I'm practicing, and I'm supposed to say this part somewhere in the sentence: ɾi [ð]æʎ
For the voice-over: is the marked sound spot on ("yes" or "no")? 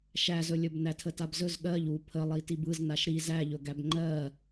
no